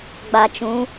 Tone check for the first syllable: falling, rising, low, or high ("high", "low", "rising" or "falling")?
low